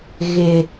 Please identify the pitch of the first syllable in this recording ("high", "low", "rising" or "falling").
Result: low